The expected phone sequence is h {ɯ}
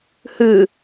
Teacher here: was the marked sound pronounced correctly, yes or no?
yes